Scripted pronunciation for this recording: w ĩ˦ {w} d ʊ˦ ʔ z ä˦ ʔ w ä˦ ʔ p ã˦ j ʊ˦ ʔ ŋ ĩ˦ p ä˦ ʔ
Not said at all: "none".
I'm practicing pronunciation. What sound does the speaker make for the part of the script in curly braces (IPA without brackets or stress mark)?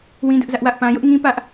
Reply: none